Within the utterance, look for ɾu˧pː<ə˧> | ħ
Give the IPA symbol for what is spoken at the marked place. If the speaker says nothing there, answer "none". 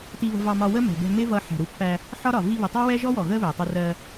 æ˧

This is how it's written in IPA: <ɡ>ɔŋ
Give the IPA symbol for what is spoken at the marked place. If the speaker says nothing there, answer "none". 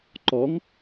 ǃ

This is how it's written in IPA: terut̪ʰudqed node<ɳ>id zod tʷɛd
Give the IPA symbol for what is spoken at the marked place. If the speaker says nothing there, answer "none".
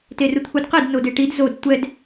ʈ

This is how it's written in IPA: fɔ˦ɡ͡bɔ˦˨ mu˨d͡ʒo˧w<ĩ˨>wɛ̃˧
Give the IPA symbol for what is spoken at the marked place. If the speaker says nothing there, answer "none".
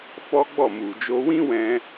ĩ˦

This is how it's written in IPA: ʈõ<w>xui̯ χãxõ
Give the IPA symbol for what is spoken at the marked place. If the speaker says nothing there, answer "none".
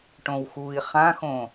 w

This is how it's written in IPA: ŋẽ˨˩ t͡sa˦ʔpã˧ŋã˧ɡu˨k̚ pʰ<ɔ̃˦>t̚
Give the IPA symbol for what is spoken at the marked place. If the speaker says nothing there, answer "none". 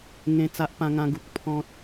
ɔ̃˦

